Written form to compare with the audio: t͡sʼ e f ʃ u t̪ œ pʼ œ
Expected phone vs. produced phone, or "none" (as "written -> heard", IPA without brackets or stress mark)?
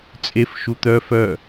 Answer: pʼ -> f